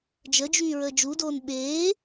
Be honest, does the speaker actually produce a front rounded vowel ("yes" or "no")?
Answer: yes